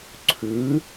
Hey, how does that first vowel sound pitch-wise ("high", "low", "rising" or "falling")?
rising